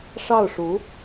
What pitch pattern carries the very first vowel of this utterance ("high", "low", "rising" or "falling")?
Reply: falling